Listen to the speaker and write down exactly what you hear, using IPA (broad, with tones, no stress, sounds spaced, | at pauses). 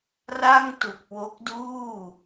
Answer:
r a˥˩ ŋ t u˨˩ k̚ w o˦˥ k̚ d uː˥˩